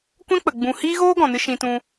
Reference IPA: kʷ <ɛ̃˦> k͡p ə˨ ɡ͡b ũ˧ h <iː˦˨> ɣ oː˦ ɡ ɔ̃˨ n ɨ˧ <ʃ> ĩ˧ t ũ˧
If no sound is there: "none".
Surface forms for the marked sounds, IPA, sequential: ɛ̃˦, iː˦, ʃ

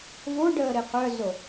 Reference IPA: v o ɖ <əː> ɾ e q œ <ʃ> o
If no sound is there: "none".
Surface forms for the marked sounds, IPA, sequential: əː, z

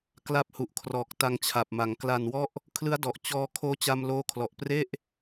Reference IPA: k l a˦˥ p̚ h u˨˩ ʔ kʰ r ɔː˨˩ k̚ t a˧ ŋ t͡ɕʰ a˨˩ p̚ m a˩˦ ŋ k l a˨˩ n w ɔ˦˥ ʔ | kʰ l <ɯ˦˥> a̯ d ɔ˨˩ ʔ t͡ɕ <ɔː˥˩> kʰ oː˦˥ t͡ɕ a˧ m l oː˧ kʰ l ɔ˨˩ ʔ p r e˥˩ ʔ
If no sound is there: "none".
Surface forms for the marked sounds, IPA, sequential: ɯ˦˥, ɔː˧

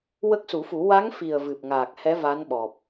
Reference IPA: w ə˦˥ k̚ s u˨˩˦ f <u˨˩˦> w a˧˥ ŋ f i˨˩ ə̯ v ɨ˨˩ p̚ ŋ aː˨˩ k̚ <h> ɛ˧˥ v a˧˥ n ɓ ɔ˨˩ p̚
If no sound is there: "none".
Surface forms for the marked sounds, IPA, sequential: u˨˩˦, h

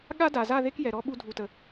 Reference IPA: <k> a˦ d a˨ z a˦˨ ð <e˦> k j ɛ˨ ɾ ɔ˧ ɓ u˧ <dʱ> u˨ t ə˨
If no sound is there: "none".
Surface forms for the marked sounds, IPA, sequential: ɠ, e˦, dʱ

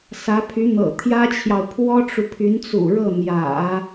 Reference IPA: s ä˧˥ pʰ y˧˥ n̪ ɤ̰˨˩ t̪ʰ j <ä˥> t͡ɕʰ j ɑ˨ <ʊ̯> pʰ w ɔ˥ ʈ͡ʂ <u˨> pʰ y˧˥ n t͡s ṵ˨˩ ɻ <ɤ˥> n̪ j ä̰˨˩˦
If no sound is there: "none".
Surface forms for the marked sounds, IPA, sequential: ä˥, ʊ̯, u˨, ɤ˥˩

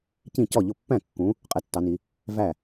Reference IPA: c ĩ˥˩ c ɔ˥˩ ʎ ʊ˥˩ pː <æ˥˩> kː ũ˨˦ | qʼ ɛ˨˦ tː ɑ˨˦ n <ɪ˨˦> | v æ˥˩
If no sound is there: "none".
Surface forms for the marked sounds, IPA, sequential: æ̃˥˩, i˨˦

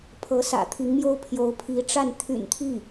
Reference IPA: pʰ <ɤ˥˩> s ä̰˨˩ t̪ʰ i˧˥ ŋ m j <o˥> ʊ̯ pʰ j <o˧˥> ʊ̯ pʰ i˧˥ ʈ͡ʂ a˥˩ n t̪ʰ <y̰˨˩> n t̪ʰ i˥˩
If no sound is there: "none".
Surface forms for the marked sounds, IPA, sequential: ɤ˧˥, o˥, o˧˥, y̰˨˩

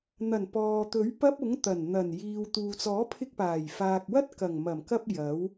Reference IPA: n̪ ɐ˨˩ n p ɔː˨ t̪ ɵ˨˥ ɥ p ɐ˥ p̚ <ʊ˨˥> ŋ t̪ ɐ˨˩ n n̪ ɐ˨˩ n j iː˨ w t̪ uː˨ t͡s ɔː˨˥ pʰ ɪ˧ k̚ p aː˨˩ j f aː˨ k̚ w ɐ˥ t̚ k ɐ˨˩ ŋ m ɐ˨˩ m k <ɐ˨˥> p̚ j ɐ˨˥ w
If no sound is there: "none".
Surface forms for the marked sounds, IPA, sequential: ʊ˨˥, ɐ˧

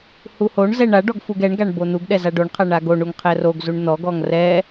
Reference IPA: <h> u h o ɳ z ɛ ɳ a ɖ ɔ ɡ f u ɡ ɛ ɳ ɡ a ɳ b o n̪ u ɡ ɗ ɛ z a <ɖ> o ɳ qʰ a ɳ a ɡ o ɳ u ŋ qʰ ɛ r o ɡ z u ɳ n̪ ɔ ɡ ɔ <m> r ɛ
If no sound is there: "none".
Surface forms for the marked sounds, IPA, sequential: h, ɖ, ŋ

